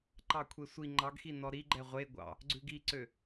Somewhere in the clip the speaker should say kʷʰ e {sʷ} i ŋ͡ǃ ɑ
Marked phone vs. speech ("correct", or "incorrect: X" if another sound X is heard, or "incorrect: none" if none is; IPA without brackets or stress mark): correct